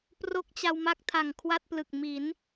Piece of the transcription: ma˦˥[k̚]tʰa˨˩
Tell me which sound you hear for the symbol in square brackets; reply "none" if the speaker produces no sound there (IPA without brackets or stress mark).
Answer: k̚